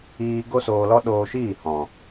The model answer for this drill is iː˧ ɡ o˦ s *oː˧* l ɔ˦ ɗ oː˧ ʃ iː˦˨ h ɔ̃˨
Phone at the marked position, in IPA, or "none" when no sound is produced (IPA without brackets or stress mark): oː˧